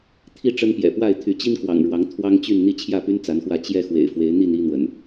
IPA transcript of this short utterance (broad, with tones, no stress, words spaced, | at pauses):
t̪ʰi˥˨ʈ͡ʂə˦npjɛ̰˨˩pwa˥˨ɪ̯ t̪ʰy˨˦t͡ɕi˦n kwɑ̰˨˩ŋ ɻwɑ˨˦ŋ t̪ʰwɑ˦ŋt͡ɕy˥˨n n̪i˥˨t͡ɕʰjä˥˨py˦n t͡sa˨˦nxwä˥˨ t͡ɕjɛ˥˨ xwḛ˨˩ɪ̯fwe˨˦ɪ̯n̪i˥˨n i˦n̪wə̰˨˩n